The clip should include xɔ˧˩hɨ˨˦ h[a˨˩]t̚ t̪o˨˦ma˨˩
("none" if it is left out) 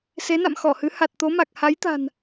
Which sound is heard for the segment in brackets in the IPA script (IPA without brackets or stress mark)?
a˨˩